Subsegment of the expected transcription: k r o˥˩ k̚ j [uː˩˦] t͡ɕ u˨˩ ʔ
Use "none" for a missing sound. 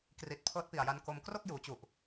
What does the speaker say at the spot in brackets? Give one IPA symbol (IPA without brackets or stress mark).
uː˩˦